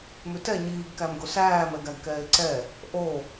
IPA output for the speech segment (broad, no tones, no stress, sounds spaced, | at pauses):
m ʉ t ɛ ɲ iː ɡ k æ m ɡ o s æː m ɛ ɡ æ ɡ k ɛː ɪ̯ ǀ ɛ | ʔ o